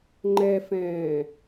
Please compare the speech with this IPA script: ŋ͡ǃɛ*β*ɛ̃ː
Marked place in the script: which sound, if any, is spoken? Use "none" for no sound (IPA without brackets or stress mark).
f